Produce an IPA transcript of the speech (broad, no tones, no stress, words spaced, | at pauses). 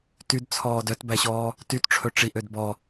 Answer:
tydt͡sʰɔːd œtbæɕɔː | tytʈ͡ʂʰɵ ʈ͡ʂiʔød bɔ